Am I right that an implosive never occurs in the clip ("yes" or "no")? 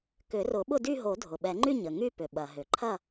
no